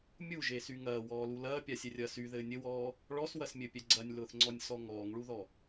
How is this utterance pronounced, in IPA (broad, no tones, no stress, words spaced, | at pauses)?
mʲuʒesy ŋɐːwɔːlu lɐːpʲasʲɛrʲɐː syðɘː nʲɘwɔː | ɭɔswɐsmʲɘpʲɛ ɡ͡ǀɐnʲlʊːθŋ͡ǀɔnʲsɔ ŋɔːŋɭuðɔ